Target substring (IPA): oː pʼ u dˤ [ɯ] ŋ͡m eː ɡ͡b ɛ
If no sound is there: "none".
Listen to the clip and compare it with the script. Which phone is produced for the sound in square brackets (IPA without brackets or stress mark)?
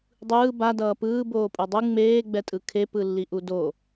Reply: ɯ